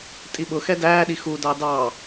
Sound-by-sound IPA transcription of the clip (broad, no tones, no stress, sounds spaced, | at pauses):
tʼ i ɓ ʊ x ɛ d æː ɗ i x u d ɑ d ɑ